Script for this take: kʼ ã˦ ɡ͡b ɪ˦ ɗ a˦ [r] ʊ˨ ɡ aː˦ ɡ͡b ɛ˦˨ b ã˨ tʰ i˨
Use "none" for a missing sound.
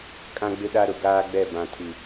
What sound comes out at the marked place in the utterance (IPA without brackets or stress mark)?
ɾ